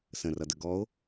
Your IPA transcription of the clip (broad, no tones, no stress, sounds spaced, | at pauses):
s ə̃ r ʌ d ə ɡ ɔ o̯